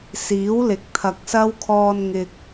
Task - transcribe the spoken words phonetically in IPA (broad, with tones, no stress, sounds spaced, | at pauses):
s iː˨˥ w l ɪ˨˥ k̚ t̪ʰ ɐ˨ k̚ s ɐ˥ w kʰ ɔː˧ n ŋ ɪ˨ k̚